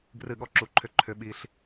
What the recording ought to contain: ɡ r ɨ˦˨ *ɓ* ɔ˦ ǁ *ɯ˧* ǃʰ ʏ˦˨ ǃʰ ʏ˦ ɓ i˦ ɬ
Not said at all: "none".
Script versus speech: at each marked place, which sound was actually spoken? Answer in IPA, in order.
ɠ, u˧

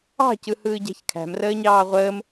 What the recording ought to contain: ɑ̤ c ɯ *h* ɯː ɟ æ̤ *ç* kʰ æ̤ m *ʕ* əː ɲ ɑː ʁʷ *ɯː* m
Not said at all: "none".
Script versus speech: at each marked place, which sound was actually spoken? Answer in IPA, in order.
h, ç, r, əː

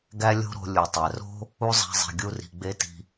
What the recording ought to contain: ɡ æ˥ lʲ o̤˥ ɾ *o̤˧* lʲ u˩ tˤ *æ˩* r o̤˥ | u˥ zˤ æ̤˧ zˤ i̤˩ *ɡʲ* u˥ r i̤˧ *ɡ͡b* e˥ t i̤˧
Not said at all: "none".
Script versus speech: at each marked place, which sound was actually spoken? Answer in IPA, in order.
o̤˧, æ˩, ɡʲ, ɡ͡b

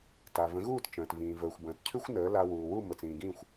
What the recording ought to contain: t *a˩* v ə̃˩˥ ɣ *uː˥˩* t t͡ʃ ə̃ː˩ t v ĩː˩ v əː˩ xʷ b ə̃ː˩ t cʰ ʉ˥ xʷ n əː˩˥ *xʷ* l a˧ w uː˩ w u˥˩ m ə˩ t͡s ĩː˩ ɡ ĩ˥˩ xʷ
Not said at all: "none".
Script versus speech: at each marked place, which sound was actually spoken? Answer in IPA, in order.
a˩, uː˥˩, none

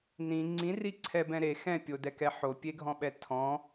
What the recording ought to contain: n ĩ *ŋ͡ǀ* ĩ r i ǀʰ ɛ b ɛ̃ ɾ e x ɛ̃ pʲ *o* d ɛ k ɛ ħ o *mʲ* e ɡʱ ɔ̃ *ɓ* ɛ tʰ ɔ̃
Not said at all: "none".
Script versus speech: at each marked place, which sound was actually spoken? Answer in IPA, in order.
ŋ͡ǀ, o, pʲ, ɓ

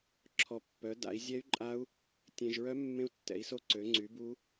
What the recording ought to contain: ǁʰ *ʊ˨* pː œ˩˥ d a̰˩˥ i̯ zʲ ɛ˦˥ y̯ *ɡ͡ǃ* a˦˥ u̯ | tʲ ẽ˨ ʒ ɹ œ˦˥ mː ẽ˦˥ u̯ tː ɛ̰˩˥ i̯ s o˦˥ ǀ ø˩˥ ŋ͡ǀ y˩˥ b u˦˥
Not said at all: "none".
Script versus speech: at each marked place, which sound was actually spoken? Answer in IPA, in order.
ɔ˨, ǃʼ

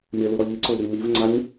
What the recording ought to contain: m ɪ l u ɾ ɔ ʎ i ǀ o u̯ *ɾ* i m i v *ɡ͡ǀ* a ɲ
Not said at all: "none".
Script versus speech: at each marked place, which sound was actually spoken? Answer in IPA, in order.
ɾ, ŋ͡ǀ

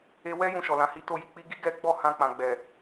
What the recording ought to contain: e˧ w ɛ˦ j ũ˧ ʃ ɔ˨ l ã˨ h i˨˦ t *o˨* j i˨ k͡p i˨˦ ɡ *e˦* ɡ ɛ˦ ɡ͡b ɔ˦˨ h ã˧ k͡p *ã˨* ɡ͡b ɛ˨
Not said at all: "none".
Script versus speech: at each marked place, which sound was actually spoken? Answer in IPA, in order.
o˧, i˦, ã˨

